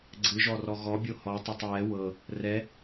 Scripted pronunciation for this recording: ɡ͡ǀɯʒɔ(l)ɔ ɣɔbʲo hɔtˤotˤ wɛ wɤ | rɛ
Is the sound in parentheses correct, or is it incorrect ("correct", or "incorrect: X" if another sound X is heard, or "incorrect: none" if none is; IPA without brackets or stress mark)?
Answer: incorrect: r